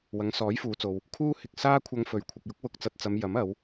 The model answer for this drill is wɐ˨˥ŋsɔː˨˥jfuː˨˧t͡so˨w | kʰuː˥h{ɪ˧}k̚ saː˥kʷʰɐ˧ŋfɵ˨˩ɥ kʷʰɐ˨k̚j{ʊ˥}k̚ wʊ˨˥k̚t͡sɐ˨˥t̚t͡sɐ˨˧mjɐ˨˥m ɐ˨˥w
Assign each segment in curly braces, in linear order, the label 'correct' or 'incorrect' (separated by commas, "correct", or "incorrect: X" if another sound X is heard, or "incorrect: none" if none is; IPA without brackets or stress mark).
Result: correct, correct